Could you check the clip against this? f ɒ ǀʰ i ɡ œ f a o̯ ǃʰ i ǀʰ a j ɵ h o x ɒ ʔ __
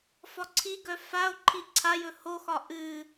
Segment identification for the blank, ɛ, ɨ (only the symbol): ɨ